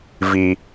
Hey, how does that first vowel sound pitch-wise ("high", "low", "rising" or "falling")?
low